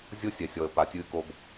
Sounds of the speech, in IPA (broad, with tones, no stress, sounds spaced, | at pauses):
zʲ o˦ sʲ ɛ˨ sʲ ɔ˨ ə̯ p a˨ tʲ ɨː˦ k o˦ b